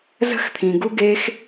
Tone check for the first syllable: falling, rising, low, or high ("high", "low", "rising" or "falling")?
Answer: falling